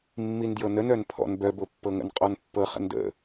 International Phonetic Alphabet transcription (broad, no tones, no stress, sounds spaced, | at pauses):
mː i n d j ɤ n ə n œ n pʰ ɔ̰ n b œ b o pː ɤ ŋ ə̰ n qʼ ɔ n pː ɤ χ ə̰ n d ə̰